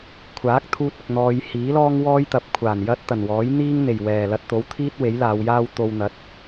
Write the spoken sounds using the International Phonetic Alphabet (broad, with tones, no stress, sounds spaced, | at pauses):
kʷʰ aː˨˥ k̚ t̪ʰ uː˧ t̚ ɪ˨ k̚ n̪ ɔː˧ j h iː˨˥ l ɔː˥ ŋ w ɔː˥ j t̪ ɐ˨˥ p̚ kʷʰ aː˨˩ n j ɐ˥ t̚ t̪ ɐ˨˩ n w ɔː˨˥ j n̪ iː˥ ŋ n̪ e˨˩ j w ɛː˨˩ l ɐ˧ t̚ t̪ o˨˥ w t̪ʰ iː˥ t̚ w e˨˥ j l aː˨˧ w j aː˥ w t̪ o˧ w n̪ ɐ˨˥ t̚